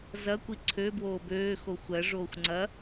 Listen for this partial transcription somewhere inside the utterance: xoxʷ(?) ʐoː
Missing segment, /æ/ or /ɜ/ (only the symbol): ɜ